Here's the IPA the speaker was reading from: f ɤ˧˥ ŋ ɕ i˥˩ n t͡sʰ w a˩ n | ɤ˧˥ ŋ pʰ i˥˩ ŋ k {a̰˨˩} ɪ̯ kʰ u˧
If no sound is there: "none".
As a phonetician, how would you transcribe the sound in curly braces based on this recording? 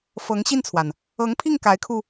a˧˥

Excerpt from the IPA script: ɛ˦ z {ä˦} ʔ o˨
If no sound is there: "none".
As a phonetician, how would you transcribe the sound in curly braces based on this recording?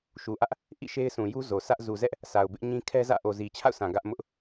ä̰˦˨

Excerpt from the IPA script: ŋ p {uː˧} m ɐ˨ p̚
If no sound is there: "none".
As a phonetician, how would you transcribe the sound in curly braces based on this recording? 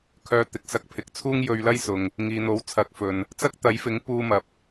uː˧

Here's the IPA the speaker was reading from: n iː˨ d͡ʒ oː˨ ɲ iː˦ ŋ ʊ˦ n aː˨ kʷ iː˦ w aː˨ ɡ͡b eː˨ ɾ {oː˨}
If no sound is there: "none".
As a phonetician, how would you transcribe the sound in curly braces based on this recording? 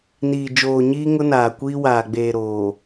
oː˨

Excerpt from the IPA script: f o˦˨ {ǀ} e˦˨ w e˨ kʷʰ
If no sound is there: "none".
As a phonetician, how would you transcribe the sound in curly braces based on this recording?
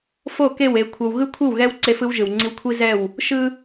k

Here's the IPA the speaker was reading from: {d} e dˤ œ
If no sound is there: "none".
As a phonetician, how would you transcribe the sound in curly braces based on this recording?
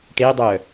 ʈ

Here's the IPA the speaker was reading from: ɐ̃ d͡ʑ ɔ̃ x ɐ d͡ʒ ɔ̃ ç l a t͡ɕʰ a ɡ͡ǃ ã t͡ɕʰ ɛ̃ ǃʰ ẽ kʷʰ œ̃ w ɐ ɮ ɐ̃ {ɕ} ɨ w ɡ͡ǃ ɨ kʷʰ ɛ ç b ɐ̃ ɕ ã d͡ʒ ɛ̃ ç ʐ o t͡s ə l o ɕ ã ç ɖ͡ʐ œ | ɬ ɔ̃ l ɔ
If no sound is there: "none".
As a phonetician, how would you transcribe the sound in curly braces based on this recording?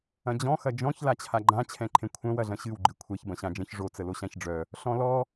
ɕ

